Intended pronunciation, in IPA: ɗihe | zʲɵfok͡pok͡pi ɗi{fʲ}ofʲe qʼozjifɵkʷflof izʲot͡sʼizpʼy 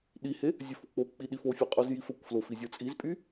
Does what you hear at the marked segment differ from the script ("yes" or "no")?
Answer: yes